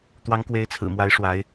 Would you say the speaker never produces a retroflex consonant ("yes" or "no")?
no